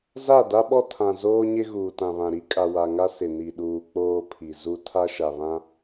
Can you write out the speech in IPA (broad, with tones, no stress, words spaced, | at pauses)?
za˦˨da˦ɓɔ˦ tʰã˨ zoː˦ɲɪ˦ ɣuː˨tã˨βã˨ ɾi˦kʼa˨wa˨ŋa˦ sɪ˨ni˨ɗuː˨ k͡poː˦pʰi˨zu˦ tʰa˦ʃa˨βã˦